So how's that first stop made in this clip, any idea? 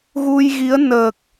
plain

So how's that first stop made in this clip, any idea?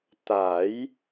plain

